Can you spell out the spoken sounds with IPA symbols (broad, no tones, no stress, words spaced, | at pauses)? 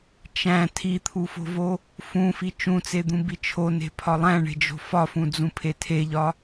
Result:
t͡ʃæ̃ tʰit̪ʰufo̤vo | fũfi t͡ʃũt͡sed̪ũbi t͡ʃʰone̤pʰɒ lˠæ̃ɳe̤d͡ʒo̤ fɒfũd͡zũpʰe tʰeʎɒ